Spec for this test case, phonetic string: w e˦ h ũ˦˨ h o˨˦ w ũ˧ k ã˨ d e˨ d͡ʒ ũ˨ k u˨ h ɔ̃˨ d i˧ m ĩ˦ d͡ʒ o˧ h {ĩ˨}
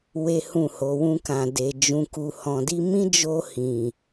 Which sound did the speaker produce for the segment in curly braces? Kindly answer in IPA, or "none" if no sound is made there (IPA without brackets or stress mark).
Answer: ĩ˨